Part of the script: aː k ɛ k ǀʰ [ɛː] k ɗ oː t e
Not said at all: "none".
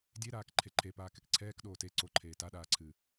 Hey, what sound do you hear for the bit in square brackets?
ɛː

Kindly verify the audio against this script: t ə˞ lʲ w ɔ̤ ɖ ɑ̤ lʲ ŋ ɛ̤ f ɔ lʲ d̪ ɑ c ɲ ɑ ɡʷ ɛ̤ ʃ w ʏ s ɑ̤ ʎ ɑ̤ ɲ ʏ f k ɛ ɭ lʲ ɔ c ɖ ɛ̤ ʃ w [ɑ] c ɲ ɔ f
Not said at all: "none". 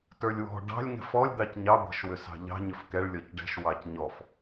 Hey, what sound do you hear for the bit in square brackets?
ɑ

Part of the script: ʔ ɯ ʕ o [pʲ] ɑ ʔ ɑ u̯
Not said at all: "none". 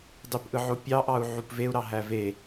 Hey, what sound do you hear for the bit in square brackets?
pʲ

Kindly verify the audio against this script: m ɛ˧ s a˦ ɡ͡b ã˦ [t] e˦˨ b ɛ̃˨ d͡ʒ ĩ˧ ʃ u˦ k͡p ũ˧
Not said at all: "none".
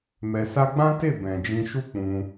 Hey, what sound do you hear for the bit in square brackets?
t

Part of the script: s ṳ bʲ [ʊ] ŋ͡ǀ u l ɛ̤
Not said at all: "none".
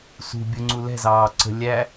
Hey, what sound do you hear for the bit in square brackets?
ʊ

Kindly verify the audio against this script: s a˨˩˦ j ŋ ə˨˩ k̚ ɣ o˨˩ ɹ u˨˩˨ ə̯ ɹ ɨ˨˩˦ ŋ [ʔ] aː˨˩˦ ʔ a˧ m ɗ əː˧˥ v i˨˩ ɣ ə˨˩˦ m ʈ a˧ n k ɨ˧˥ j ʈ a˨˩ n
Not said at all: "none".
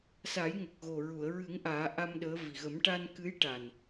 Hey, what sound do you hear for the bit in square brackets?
ʔ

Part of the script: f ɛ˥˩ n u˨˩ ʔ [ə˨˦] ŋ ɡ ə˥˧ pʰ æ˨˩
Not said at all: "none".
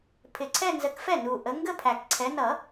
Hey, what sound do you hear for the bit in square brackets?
ə˨˦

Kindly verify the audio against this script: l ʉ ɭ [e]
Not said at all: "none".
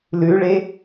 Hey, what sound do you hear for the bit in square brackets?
e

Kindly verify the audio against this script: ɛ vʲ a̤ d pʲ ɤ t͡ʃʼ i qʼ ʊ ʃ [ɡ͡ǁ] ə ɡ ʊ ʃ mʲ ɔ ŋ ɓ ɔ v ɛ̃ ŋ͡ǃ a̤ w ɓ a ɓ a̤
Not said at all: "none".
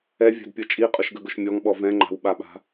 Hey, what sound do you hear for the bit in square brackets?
ɡ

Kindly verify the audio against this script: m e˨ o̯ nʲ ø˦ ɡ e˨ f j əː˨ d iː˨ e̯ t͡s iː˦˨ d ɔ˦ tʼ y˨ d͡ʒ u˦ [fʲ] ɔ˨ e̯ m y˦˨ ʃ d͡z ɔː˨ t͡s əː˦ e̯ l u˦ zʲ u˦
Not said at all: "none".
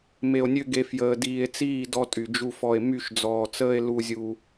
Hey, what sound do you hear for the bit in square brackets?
f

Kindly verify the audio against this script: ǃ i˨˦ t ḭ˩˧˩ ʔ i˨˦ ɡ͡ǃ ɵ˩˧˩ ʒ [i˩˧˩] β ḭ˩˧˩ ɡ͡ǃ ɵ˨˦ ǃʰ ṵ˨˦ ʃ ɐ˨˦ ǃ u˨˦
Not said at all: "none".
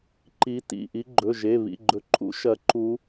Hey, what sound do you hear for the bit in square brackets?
e˩˧˩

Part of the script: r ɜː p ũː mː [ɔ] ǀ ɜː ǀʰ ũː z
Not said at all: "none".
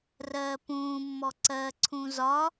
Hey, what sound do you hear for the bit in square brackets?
ɔ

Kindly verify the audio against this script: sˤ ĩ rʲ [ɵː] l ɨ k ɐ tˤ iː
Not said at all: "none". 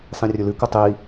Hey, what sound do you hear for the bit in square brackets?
ɵ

